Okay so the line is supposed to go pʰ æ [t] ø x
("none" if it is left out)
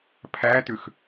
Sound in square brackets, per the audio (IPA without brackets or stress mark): t